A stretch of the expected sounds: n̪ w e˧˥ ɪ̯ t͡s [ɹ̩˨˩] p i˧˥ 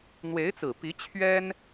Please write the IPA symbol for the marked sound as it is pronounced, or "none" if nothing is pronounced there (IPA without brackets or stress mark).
ɹ̩˨˩